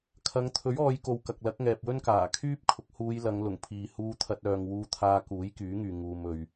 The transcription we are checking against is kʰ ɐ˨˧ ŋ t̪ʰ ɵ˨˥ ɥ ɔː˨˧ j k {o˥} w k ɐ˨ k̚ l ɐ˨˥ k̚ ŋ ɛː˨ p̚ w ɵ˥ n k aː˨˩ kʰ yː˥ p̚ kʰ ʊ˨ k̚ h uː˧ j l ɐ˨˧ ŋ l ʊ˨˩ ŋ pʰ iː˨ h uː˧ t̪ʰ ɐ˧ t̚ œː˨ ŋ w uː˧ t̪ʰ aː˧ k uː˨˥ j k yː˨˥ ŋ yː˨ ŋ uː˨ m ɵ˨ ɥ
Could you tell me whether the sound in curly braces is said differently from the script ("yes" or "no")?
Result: yes